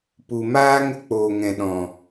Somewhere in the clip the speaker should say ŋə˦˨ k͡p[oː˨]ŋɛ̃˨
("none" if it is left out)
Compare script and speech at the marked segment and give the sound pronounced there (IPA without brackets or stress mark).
oː˨